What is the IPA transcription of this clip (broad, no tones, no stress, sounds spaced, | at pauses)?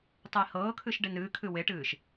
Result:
tˤ i h ɤː kʰ ɨ ʃ ɖ e n ɨː kʰ ɨ w e ʈ ɨː ʃ